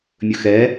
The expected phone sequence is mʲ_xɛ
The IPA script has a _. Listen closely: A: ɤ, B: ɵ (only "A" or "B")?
B